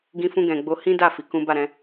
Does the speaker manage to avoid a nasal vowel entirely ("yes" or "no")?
no